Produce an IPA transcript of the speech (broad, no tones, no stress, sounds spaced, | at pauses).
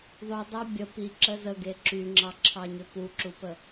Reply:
ðˤ ʏ dˤ a bʲ ə p i ǁ ə z ə ɡ e ǁ y ŋ͡ǁ ɑ ǁʰ ɑ ɲ ʏ p u ǁ u p ə